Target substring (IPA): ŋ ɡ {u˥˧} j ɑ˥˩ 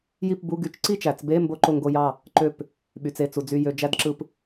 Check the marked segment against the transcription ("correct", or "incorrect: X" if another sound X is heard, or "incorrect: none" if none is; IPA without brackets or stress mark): incorrect: o˥˧